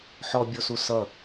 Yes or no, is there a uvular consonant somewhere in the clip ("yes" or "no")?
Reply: no